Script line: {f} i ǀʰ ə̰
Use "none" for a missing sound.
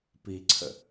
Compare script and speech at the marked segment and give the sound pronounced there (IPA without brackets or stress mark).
p